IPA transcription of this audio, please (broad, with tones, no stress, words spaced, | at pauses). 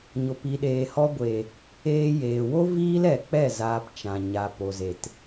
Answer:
ɲo˨pi˨ɗeː˨hɔ˧ ɡʷe˨ | eː˧ jeː˨wo˦ viː˦lɛ˨k͡pɛ˦˨ zaː˧pt͡ʃã˨ ɲa˨po˨ze˨t